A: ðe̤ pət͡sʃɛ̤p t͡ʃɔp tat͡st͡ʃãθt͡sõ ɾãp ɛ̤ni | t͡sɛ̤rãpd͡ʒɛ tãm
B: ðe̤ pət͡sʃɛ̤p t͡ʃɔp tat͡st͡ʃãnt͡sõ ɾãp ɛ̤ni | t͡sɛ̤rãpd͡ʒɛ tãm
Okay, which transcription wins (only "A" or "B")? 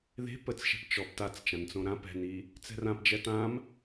B